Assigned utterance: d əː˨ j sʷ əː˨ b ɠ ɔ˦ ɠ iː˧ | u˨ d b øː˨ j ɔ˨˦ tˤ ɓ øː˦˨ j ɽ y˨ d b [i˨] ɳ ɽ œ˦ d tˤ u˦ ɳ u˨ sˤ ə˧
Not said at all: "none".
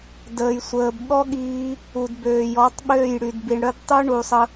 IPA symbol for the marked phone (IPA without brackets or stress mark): i˨